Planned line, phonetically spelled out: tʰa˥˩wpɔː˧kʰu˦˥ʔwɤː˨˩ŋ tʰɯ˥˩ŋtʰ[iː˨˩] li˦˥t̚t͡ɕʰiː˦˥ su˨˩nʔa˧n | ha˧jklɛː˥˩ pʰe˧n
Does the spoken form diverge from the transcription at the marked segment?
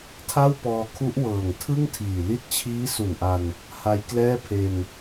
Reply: no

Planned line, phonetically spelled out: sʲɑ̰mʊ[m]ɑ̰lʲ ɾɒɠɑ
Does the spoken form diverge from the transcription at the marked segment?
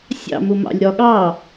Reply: no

